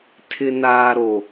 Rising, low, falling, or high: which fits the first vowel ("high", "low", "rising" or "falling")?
low